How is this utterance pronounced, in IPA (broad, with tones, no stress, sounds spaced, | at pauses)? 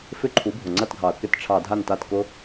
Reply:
f ɪ˦˨ ǃʰ u˩˥ bʱ ʊ˩ ŋ͡ǀ ɐ˦˨ t ɡʱ ɑ˩ ɐ̯ k ɪ˦˨ t ʈ͡ʂʰ ɑ˧˩˧ dʱ a˦˨ n t a˦˨ t k ʊ˦˥